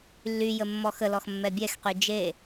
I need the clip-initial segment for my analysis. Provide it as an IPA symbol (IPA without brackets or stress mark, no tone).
lː